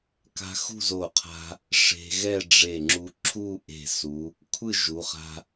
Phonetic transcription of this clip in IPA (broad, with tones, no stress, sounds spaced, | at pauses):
k a̤˥ x ṳ˥˧ z o˧˩ qʰ a̤˧ | ʂ e̤˧ ɣ ɛ˥˧ ɖ͡ʐ e˧˩ ŋ͡ǁ u˧ ǁʰ u˥˧ ʔ e̤˧˩ s u˩˧ | kʷʰ ɯ˥˧ ʒ u˩˧ χ a̤˧